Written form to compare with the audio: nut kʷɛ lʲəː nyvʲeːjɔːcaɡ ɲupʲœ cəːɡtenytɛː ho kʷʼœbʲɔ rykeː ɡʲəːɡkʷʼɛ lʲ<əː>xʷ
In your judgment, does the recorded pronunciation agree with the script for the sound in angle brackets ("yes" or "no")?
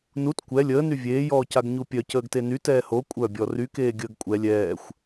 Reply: no